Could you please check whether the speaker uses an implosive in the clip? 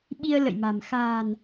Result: yes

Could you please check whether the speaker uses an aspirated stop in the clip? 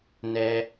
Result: no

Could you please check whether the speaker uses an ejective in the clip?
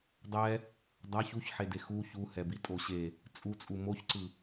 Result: yes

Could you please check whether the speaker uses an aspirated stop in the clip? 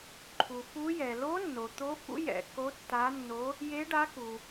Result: yes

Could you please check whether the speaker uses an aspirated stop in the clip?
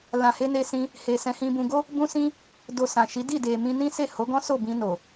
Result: no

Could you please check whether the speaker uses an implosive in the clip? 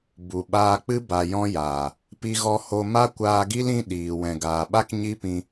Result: yes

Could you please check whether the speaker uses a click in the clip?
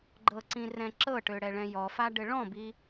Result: yes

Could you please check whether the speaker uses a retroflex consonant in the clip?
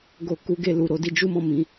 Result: no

